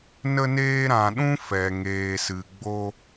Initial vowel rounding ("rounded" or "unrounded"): unrounded